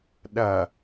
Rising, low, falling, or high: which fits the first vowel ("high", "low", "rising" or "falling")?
low